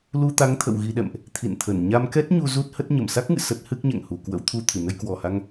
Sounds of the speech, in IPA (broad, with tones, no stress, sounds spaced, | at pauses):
l u˧ t̪ a˨˦ ŋ t̪ʰ ə̰˧˨ w ɣ i˧ ɗ ɛ̰˧˨ m ʔ | t̪ʰ ḭ˧˨ n t̪ʰ ə˧˩ n ɲ a˧ m k ɛ˦˥ t̚ ɲ u˧ z u˦˥ t̚ h ə˦˥ t̚ ɲ ə˧˩ m s a˦˥ k̚ ŋ ɨ̰˧˨ s ə˦˥ t̚ h ɨ˦˥ k̚ ɲ ɛ̰˧˨ ŋ h u˨˩ k w ə̰˧˥ w t̪ʰ u˧ t̪ʰ ɨ˧˩ n ə˧ j k w ɔ˨˩ h a˧ ŋ